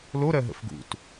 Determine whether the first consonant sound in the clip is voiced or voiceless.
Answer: voiced